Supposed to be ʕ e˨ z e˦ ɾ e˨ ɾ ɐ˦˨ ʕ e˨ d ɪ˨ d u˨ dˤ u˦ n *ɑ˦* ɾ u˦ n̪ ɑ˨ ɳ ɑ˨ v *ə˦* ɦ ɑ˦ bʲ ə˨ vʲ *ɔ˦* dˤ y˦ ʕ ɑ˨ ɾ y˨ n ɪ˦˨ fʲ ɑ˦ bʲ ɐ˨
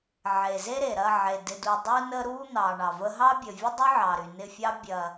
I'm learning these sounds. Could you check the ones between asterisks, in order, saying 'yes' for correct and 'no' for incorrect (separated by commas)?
no, yes, no